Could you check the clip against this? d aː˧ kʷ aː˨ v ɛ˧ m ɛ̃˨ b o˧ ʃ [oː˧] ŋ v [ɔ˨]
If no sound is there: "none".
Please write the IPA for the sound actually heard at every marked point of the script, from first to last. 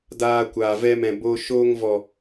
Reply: oː˧, ɔ˨

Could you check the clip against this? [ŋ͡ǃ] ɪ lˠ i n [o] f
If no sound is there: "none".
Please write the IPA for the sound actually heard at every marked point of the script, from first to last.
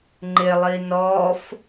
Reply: ŋ͡ǃ, ɔ

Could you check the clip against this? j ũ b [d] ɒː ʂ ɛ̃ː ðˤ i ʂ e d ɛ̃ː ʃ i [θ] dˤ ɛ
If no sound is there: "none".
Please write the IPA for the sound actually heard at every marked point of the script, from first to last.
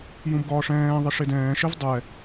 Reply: ɡ, v

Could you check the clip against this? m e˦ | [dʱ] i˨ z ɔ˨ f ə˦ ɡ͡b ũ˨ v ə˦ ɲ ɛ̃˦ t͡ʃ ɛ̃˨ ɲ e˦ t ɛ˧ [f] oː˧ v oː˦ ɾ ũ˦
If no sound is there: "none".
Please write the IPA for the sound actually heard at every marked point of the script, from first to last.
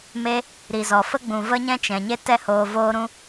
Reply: ɾ, h

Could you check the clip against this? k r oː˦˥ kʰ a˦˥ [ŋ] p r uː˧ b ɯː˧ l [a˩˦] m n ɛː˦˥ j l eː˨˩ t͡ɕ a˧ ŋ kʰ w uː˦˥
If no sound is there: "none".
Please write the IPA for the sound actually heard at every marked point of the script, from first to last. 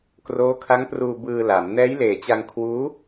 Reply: ŋ, a˩˦

